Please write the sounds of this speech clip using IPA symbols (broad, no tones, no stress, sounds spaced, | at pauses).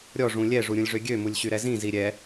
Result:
ɾʲ ɔ ʐ ũ lʲ ɛ ʐ u ɾʲ ũ lʲ ʐ ø ɡʲ ø m u lʲ ɕ y ɾ ɛ z ĩ z i ɾʲ ɛ